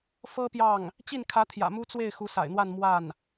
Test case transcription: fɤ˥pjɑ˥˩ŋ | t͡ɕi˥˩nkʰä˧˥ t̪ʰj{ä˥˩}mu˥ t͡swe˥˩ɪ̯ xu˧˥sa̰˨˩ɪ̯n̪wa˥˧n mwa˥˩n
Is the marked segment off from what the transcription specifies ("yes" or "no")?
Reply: yes